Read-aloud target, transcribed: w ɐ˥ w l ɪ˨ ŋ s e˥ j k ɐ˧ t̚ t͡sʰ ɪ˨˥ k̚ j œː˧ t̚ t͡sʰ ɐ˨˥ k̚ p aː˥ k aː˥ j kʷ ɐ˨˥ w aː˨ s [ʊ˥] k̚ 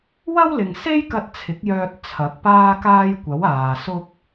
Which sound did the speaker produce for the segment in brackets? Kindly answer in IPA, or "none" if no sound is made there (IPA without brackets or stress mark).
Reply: ʊ˥